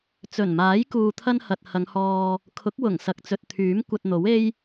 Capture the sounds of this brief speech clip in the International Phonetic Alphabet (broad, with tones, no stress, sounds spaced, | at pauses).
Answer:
t͡s ɵ˨˩ n m aː˨˥ j k uː˧ t̪ʰ ɐ˥ n h ɐ˨ t̚ h ɐ˨˧ ŋ h ɔː˧ | kʰ ʊ˨˥ k̚ w ʊ˨˩ ŋ s ɐ˨ k̚ t͡s ɵ˨ t̚ t̪ʰ yː˨˥ m kʷ ɐ˧ t̚ n̪ o˨˥ w e˥ j